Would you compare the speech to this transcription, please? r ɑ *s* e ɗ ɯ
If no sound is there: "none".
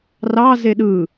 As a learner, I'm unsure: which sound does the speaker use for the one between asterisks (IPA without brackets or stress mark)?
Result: z